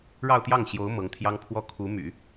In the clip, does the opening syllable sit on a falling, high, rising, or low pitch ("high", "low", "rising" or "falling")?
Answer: falling